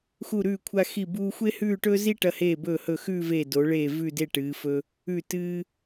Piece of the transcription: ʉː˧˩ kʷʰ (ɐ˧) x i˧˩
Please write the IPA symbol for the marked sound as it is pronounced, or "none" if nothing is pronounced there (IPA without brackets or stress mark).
a˧